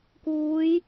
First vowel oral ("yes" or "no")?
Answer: yes